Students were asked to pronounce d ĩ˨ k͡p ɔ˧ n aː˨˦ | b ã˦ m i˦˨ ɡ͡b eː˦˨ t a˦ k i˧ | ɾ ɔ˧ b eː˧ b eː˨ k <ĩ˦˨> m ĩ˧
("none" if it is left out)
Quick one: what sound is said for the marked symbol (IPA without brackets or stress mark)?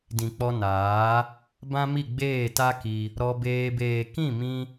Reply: ĩ˦˨